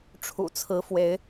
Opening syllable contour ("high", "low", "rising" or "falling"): low